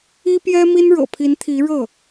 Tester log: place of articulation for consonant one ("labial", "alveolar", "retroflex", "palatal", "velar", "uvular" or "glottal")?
labial